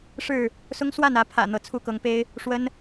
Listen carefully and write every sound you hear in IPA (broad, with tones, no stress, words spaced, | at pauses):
ʂɻ̩˥˨ | sʊ˦ŋ swa˥˨nä˨˦ pʰä̰˨˩ n̪ɤ˨˦t͡sʰu˦kɤ˨˦ŋpe˦ɪ̯ | ʂwə˦n